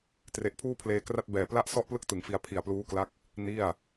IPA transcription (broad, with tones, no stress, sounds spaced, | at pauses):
t r e˨˩ ʔ pʰ uː˥˩ pʰ l eː˧ k r a˥˩ t̚ b ɛː˨˩ p l a˥˩ ʔ s ɔ˥˩ ʔ p l ɯ˥˩ k̚ t ɯ˨˩ ŋ f i˧ a̯ pʰ i˨˩ a̯ p l uː˦˥ k l a˦˥ k̚ | n i˥˩ a̯